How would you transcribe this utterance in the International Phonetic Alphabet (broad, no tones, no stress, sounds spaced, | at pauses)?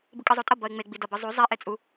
b ɯ kʼ ɯ zˤ o tʼ ʌ b ʌ ɪ̯ ŋ͡m e ɡ͡b i d ʌ b ɯ zˤ u zˤ e ʔ e t͡sʼ u